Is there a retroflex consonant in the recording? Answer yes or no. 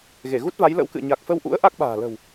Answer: no